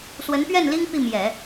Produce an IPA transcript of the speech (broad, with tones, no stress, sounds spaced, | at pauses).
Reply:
s w ə˧˥ n p ɥ ɛ˥˩ n l i˥ ŋ p i˥˩ m j ɛ˨˩˦